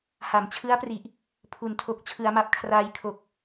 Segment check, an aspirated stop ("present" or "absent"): present